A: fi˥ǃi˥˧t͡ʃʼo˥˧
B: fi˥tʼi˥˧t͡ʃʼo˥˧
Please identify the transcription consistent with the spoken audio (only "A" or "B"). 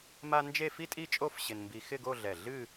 B